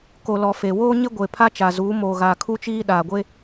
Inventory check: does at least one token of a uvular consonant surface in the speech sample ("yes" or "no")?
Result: no